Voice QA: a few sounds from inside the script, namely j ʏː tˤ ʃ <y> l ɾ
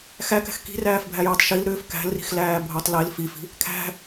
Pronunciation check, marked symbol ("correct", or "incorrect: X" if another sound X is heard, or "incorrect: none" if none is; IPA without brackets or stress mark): incorrect: i